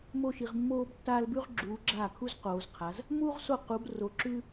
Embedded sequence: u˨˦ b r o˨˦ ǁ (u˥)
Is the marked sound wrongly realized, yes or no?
yes